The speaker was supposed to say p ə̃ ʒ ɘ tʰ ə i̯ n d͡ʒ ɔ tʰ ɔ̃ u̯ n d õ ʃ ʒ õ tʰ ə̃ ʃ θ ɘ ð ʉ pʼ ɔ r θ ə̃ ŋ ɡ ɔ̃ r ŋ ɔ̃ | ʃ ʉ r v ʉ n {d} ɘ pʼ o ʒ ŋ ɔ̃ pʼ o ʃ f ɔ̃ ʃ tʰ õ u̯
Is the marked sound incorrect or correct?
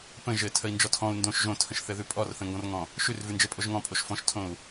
incorrect